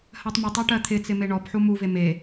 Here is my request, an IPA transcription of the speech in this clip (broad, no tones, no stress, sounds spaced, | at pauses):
h ɜ tˤ m œ tˤ ɔ ʈ ɜ t̪ʰ ɪ t͡s ɪ m e ɳ ɔ p ħ u m u v e m e